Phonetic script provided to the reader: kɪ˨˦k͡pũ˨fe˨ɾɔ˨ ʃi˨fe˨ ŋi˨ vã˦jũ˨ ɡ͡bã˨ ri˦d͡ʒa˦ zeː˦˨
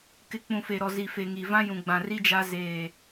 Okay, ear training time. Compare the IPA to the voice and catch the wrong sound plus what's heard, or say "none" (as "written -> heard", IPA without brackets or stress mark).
ʃ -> z